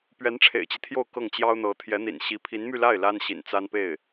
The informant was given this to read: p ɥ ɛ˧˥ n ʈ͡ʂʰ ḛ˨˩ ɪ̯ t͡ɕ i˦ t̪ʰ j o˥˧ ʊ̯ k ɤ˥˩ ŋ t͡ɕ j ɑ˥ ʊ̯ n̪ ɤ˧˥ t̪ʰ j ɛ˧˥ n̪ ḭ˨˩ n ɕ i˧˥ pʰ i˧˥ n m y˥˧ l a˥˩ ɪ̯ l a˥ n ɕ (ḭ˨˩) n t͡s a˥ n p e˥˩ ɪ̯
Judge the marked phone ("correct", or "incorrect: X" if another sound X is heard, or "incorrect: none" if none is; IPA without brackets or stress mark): correct